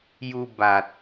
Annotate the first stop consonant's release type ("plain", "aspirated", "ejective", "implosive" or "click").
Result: plain